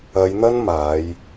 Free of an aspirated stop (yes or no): yes